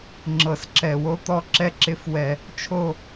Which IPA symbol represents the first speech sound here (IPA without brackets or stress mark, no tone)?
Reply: ŋ͡ǁ